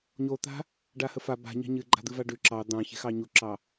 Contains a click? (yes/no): yes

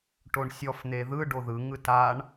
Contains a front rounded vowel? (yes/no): no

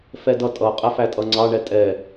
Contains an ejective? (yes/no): yes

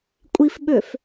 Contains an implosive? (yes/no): yes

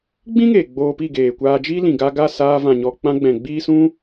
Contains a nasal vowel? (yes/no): yes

